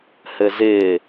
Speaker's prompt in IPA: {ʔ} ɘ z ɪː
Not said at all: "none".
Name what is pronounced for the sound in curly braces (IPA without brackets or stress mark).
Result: h